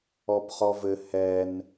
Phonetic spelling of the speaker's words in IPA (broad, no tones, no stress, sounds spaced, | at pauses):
ɔ b χ ɔ v ɘ h ɛ n